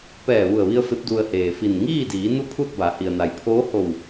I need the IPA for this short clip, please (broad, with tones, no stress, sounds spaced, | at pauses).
p ɛː˧˩ ʋ u˧˩ ə̯ ʋ i˧ ə̯ f e˧˥ p̚ d u˧ ə̯ h eː˩ f i˧˩ n ŋ iː˥˨ d iː˩˧ n u˥˨ pʰ u˥˨ t̚ b a˩˧ h i˩ ə̯ n a˩ j pʰ oː˧˥ h o˧˩ w